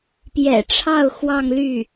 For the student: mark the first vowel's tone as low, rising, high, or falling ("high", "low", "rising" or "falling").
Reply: low